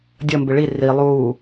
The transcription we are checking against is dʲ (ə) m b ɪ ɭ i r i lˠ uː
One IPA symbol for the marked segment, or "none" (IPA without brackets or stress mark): ə